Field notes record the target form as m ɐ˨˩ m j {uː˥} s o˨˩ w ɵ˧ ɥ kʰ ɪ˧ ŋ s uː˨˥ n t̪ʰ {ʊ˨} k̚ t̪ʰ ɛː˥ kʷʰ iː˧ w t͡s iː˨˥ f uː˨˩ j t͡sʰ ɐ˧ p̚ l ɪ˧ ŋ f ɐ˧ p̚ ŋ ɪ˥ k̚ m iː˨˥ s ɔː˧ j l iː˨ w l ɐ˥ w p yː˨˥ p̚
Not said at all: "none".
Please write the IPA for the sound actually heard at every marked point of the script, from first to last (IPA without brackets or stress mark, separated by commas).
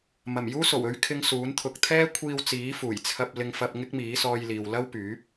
uː˥, ʊ˨